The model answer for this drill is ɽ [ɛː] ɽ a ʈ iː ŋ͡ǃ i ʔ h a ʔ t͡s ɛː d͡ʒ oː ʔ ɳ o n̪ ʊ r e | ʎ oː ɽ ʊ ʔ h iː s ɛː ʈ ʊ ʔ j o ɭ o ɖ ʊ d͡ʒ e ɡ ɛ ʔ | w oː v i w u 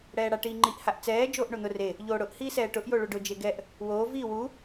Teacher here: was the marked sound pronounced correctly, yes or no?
yes